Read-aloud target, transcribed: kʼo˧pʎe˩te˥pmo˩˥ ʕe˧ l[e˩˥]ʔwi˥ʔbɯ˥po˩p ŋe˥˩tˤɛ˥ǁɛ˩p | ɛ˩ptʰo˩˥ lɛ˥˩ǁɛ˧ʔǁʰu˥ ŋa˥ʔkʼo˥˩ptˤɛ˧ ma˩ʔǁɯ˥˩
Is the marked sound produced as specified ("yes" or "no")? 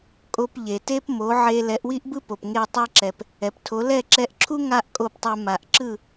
no